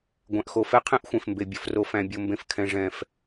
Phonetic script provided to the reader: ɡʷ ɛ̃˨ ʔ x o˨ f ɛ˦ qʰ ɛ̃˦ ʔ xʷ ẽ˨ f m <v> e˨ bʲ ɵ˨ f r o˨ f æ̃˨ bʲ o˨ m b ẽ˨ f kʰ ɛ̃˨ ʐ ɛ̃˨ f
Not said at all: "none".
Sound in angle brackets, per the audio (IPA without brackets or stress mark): b